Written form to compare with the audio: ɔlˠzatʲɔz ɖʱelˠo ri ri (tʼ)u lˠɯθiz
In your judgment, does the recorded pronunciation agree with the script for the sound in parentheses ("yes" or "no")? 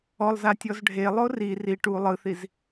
no